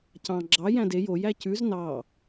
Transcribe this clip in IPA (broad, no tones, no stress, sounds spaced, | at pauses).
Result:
c ɑ̃ ɡ͡ǁ ɑ j æ̃ d e j o j æ c ʉ z n ɑ